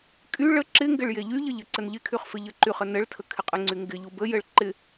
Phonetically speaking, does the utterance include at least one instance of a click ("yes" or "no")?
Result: yes